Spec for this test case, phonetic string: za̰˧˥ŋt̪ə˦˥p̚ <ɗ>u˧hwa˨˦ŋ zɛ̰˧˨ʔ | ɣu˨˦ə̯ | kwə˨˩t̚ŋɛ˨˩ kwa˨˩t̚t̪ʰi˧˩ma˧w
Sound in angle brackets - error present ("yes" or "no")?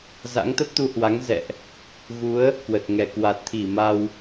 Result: yes